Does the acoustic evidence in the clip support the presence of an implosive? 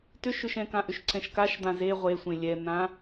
no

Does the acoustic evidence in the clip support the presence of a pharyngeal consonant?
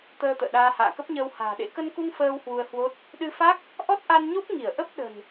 no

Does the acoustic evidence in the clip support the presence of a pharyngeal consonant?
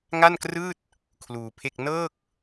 no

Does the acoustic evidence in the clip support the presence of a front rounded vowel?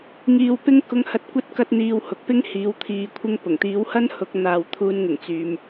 yes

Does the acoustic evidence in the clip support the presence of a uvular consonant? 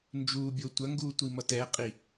yes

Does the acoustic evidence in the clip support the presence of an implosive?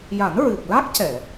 no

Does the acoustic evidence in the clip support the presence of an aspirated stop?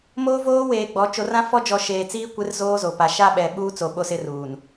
no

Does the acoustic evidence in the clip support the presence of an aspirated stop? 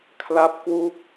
yes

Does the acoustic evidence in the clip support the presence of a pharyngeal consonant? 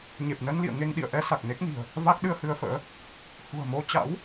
no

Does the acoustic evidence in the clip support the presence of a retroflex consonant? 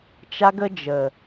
no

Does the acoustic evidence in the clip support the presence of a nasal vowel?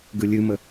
no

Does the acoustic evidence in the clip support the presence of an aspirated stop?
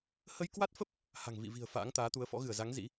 no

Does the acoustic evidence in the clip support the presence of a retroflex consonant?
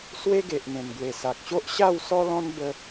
no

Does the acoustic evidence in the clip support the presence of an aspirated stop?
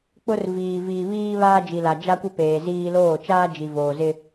no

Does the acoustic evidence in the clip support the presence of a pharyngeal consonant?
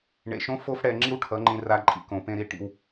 no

